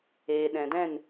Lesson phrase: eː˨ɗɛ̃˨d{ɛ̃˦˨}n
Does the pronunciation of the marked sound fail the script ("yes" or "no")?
no